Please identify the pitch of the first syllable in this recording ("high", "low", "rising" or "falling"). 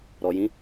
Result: low